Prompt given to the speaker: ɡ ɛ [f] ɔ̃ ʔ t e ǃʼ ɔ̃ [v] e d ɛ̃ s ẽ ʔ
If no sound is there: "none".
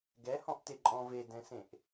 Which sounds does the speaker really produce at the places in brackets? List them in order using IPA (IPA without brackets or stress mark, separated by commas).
h, v